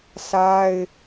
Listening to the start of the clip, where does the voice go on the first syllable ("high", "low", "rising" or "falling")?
high